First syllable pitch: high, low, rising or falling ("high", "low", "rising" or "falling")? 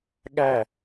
falling